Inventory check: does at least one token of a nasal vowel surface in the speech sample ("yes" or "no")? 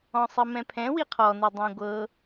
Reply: yes